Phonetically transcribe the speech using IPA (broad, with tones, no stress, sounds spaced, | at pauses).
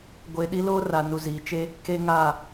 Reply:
ɡʷ e˨ ɗ i˦ l oː˦ r a˨ n u˨ z iː˨ t͡ʃ e˦ | k e˦ ŋ a˦˨